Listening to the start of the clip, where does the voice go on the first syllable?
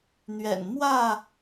low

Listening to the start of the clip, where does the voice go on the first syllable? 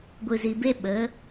low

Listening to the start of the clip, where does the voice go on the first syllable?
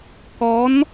rising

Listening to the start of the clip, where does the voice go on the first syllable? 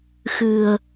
low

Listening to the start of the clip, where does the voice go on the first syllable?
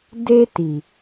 high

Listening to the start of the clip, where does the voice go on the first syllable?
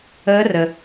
rising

